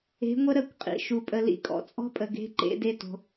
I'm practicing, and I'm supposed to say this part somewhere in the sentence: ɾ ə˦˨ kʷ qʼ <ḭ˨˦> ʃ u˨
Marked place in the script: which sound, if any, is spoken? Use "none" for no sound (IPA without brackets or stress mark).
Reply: ḭ˨